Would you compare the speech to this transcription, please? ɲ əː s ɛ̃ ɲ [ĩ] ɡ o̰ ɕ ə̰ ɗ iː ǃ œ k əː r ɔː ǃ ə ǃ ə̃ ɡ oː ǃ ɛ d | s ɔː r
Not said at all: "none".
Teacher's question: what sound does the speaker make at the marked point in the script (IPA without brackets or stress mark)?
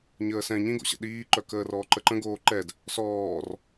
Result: ĩ